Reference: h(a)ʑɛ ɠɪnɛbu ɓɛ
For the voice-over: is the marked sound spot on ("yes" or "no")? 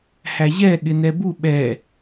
no